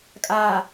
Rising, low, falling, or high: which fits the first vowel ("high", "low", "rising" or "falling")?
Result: low